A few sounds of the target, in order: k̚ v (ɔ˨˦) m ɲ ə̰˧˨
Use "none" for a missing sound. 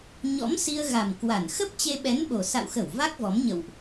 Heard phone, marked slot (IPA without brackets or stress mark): ɔ˨˦